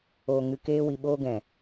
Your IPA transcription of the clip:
oː˨ ŋ ɨ˨ k eː˧ w i˨ ɓ oː˧ ɡ ɛ̃˨

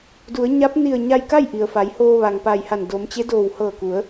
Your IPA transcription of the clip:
d u˩˧ ə̯ ɲ a˧˥ p̚ n i˧˩ ə̯ ɲ a˧ j k a˥˨ j ʔ i˩ ə̯ f a˩˧ j h oː˧ ʋ a˩ ŋ p a˧˩ j h a˧˩ n d o˩˧ m t͡ɕ e˧˥ d oː˧˩ w h ɤː˧˩ k u˩˧ ə̯

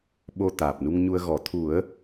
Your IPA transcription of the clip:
ɓ o˧ t̪ aː˨˩ p̚ n u˧ ŋ ɲ u˧ ə̯ ɣ ɔ˨˩˦ t̪ʰ u˨˩˦ ə̯

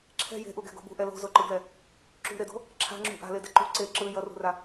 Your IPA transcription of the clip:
ǁʰ ɛ̤ j e̤ ʔ u ɡ ɛ̤ ɡ o̤ b ṳ ʔ ɛ l o̤ z o ǃ ɯ ɡ l ɛ | ǁ ṳ ɾ e d o̤ | ǁʰ a̤ ŋ͡ǁ ṳ ʔ a̤ l e d ɛ ǃ ṳ ǀ e ǁ ɯ j ʌ r ṳ r a

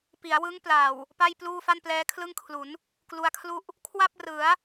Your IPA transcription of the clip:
p i˩˦ a̯ w ɯ˦˥ ŋ p l a˨˩ w | p a˥˩ j p l uː˥˩ f a˥˩ n p l ɛː˦˥ kʰ l ɯ˥˩ ŋ kʰ l u˩˦ n | k l u˧ a̯ kʰ l u˥˩ ʔ | kʰ w a˥˩ p̚ r ɯ˩˦ a̯

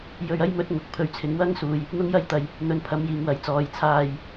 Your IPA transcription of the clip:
j ɵ˧ ɥ ɐ˥ j m ɵ˧ t̚ ŋ ʊ˨ k̚ pʰ ɵ˨ ɥ t͡sʰ ɪ˨˧ ŋ w ɐ˥ ŋ s uː˨ j | n̪ ʊ˥ ŋ j ɐ˥ j t̪ ɐ˨ j | n̪ ɵ˨˧ n pʰ ɐ˨˧ m j iː˨ ŋ w ɐ˨˥ j t͡s ɔː˨ j t͡sʰ aː˨ j

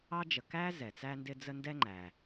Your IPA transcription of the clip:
ɑ˥ d͡ʒ ə˨ k æ˥ z ɛ˩ t͡s æ˦ n d ɪ˦ d͡z ə˦ n d ɛ˥ ŋ͡ǃ æ˩

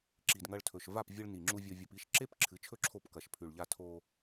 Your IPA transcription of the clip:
ǁ i˨ d ŋ ɐ˧ ɭ tʰ ɵ˨ ʃ v a˦˨ p vʲ ɨ˧ ɭ n i˨ ŋ͡ǁ u˧ vʲ o˧ vʲ o˧ p i˦ ʃ ǁ e˦ p ǁʰ ɨ˨˦ t͡ʃʰ ɵ˦ ǁʰ o˦˨ p k ɐ˨ ʃ pʰ ʉ˨ ɭ ʎ a˧ tʰ o˧

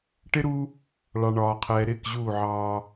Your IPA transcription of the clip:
ʈ ɪ˦ ɾ u˦ | ɭ ɑ˨ ɳ ɒː˨ qʰ ɛː˨ ɾ ɪː˦˨ k ʑ uː˦˨ ʕ ɑː˦

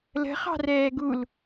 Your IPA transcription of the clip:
l ə̤ χ ɑ̤ r ɛː ɡ u l

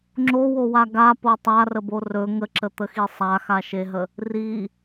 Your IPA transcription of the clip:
ŋ͡ǁ o w o w a ɡ a p o tˤ a r ə b o r ɵ ŋ ə ǁ ə t̪ ə x i sˤ a x a ʃ e ɦ ə | r i

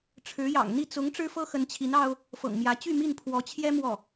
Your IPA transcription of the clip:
ʈ͡ʂʰ ɻ̩˧˥ j ɑ̰˨˩ ŋ n̪ i˥˩ t͡s ʊ˧˥ ŋ ʈ͡ʂ ɻ̩˥ f ɤ˥ x ə˧˥ n t͡ɕʰ i˧˥ n ɑ˥ ʊ̯ | f ɤ̰˨˩ ŋ m j ä˧˥ t͡ɕ y˥˧ m i˥˩ n pʰ w ɔ˧˥ t͡ɕʰ j ɛ˥ m w ɔ˥˩

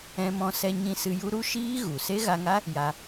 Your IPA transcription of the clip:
ɛ̃˧ m ɔ̃˧ s ɛ˧ ɲ ĩ˧ s ɨ˧ j u˦ ɾ u˦ ʃ iː˦ ɣ u˨ s e˦ ɣ a˧ ŋ a˦ | j a˧

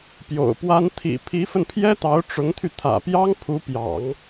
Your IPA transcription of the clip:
p j o̰˨˩ ʊ̯ p w a˥ n t̪ʰ ḭ˨˩ pʰ i˧˥ f ə˧ n pʰ j ɛ˥ t̪ ɑ˧˥ ʊ̯ ʈ͡ʂ ʊ˧˥ ŋ t̪ʰ y˧ t̪ʰ ä̰˨˩ p j ɑ˥ ŋ pʰ u˧˥ p j ɑ̰˨˩˦ ŋ

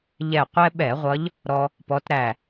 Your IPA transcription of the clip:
ʎ ɛ˧˩ qʷ ɛ˦ ɓ ɛ˧˩˧ ʁʷ ʌ˨˦ ʎ | ɾ ɔ˦ | p ɔ˨˦ t ɾ æ˧˩

